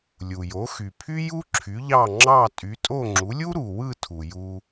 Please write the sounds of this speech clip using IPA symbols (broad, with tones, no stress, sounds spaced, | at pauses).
lʲ u˩ j o˩˥ x y˩ pʰ y˥ j u˥ ǁʰ y˩˥ ʎ ɑ˥˩ ŋ͡ǁ ɑ˥˩ tʼ y˩˥ tʼ o˥˩ ŋ͡ǁ u˩˥ lʲ u˥ ɾ u˩ w ɯ˥˩ tʰ u˩ j u˧